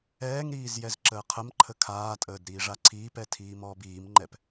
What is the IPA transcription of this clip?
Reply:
ɛː ŋ ɾ iː z j ɛ z ǁ əː qʰ ə m ǃʰ ə kʰ aː tʼ əː d ɾ iː ʐ a ǀʰ iː p ɛ tʰ iː m ɔː b iː m ŋ͡ǃ ɛ p

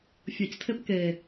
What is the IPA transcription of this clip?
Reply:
fʲ ɤ c tʰ e p k e

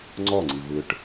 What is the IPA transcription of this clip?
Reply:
ŋ͡ǀ ɔ ŋ͡ǀ i v ɯ ʈ

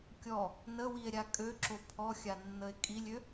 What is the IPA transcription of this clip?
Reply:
kʲ ɔ | n ə w i e̯ ɾʲ a kʼ ø ǁ o pʰ ɔ xʲ a nː ə e̯ kʼ i lʲ ø

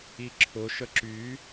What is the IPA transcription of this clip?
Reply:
i ǁʰ ʊ ʃ ə ǁ y

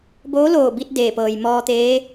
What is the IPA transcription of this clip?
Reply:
b oː˧˥ l oː˧˩ b i˧ t̚ d eː˧˩ p ɤː˩ j m ɔː˧ t̪ eː˧˥

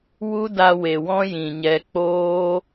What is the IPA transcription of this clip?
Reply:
w u˦ d a˧ w e˨ w ɔ̃˦ j ĩ˨ ɲ ɛ˧ k͡p oː˦

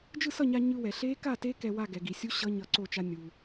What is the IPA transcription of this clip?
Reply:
d͡ʒ ɯ˥˨ s ʌ˥˨ ɲ a˧ ɲ ɯ˧ w ɛ˩ ɬ e˦˥ k a˥˨ t e˦˥ k ɛ˧ w a˥˨ ɡ ɛ˩ ɡ i˩ sʲ u˦˥ ɕ ʌ˦˥ ɲ ʌ˧ ǀ o˥˨ t͡ʃ a˦˥ nʲ u˩

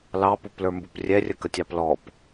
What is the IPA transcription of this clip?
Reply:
l ɑ p u p l ə˞ m b u p rʲ ɛ rʲ ə k ə tʲ ɑ p l ɔ p

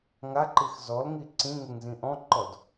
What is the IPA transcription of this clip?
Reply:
ŋ a ǃ i x z ɔ l ŋ i ǀ ĩ ŋ e ŋ z ĩ ʔ ɔ̃ ǃ ɔ d

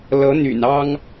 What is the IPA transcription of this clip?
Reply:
l ɤ˧˥ n̪ y̰˨˩ n ɑ˥ ŋ

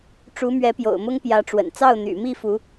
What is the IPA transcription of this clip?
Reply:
ʈ͡ʂ u˧˥ m ɥ ɛ˧˥ p j o̰˨˩ ʊ̯ m ʊ˥ ŋ p j ä˧˥ ʈ͡ʂ w ə̰˨˩ n t͡s ɑ˥˩ ʊ̯ n̪ y̰˨˩ m i˥˩ f u˧˥

